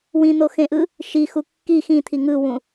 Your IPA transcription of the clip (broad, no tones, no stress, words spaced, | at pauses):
wĩn̪oxẽʔɯ | ʃixu kːi xĩt̪ʰi ŋɯwũ